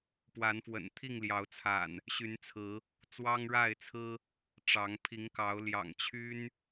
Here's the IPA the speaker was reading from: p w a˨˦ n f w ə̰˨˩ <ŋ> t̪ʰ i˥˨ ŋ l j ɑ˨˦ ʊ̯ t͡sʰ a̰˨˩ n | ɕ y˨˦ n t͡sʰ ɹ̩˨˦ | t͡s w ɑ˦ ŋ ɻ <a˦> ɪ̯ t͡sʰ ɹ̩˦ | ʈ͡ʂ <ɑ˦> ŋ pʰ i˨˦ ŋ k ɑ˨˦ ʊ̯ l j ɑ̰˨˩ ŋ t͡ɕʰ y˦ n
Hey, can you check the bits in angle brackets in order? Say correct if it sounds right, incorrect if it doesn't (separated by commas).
incorrect, incorrect, incorrect